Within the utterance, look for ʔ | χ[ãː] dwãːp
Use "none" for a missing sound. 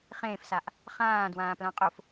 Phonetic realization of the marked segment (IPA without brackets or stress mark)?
ãː